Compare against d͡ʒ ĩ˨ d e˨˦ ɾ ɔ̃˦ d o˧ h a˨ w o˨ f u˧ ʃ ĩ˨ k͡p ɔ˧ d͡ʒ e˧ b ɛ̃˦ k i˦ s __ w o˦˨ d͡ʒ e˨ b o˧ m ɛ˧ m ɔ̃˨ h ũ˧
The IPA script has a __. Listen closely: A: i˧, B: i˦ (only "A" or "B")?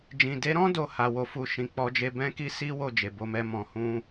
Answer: B